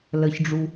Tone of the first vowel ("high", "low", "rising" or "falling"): low